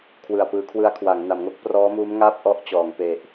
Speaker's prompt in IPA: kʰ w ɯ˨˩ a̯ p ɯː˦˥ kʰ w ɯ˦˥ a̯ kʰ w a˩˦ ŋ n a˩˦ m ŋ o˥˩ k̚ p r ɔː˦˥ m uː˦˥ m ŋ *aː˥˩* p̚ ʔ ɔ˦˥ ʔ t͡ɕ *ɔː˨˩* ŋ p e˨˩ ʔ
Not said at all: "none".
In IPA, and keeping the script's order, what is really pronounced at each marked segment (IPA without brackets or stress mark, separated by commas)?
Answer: aː˥˩, ɔː˩˦